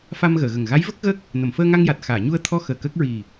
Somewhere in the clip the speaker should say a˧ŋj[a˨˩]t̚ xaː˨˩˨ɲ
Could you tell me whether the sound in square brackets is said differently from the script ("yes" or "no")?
no